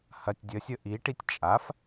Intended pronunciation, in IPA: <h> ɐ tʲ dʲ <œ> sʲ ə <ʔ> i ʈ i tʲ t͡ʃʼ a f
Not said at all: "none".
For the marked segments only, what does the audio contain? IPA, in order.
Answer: h, ə, ʔ

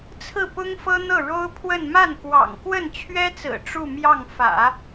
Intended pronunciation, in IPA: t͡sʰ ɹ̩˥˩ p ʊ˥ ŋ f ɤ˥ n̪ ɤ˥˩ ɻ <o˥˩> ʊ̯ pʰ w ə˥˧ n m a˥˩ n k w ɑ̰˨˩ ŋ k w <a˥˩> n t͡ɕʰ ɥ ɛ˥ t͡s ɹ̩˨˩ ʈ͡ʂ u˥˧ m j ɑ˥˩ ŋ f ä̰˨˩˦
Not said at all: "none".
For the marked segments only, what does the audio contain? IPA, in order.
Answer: o˥, ə˥˩

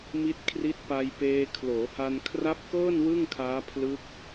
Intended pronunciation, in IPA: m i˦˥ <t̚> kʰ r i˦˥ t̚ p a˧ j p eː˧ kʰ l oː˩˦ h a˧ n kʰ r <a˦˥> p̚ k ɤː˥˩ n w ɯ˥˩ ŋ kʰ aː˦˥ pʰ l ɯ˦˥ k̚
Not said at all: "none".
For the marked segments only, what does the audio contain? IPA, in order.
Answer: t̚, a˦˥

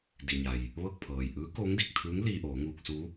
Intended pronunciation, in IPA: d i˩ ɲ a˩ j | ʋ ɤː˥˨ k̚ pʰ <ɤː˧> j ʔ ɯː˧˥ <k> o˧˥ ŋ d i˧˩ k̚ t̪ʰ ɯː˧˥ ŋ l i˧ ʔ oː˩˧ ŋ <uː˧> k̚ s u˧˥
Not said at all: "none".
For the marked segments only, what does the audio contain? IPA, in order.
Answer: ɤː˩, k, uː˧

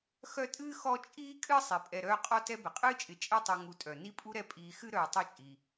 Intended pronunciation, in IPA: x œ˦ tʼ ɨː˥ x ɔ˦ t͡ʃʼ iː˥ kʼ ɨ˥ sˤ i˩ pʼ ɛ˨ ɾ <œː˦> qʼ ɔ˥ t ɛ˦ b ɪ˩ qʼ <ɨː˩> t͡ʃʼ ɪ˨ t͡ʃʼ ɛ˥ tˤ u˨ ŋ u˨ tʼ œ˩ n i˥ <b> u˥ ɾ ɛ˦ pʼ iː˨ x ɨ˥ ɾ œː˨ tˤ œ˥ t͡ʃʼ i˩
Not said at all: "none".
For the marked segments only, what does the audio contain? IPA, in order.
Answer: œː˦, ɨː˥, pʼ

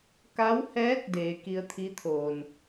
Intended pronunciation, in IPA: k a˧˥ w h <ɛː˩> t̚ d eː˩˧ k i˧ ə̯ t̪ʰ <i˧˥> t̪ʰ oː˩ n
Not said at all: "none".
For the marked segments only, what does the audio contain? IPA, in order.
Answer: ɛː˧˥, i˧˥

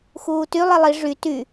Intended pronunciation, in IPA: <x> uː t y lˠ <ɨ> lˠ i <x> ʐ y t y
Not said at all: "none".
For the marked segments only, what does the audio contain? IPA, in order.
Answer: x, i, none

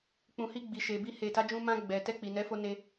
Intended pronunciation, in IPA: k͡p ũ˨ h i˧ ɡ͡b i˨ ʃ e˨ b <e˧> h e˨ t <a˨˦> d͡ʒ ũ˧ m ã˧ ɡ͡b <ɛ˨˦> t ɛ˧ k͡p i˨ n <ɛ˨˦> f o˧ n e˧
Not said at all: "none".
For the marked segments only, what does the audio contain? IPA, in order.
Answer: i˧, a˨˦, ɛ˨, ɛ˨˦

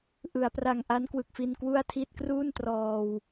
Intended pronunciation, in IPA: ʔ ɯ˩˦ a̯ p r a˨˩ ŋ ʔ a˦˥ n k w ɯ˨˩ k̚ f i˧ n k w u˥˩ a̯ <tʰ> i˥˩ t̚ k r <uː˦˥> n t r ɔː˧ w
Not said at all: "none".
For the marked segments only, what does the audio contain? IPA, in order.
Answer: tʰ, uː˥˩

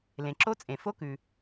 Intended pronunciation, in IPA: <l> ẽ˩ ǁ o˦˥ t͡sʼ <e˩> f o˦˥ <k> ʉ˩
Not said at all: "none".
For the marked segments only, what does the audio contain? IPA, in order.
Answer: l, ẽ˩, k

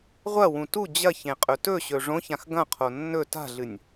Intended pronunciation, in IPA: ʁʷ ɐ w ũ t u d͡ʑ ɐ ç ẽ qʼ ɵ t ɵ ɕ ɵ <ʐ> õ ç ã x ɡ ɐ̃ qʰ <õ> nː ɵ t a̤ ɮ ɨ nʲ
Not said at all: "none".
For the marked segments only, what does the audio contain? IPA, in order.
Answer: ʐ, o

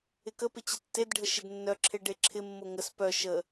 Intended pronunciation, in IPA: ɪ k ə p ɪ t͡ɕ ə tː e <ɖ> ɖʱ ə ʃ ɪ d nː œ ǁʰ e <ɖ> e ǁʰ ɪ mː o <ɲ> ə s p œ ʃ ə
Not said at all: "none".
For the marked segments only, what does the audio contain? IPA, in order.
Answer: d, ɖ, ŋ

